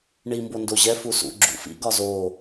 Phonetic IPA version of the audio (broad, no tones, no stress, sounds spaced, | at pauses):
ɳ i m b o n d o ʑ ɛ f u s ṵ ɡ͡ǁ ṵ f ḭ ɡ ɒ z o